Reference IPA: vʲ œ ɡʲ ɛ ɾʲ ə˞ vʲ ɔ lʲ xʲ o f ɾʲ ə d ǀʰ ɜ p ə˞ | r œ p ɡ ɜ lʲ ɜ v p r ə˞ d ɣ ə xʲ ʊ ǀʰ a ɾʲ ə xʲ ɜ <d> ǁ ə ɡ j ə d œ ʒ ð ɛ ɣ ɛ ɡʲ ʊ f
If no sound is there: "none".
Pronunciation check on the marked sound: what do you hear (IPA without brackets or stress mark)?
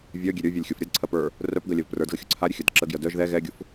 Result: d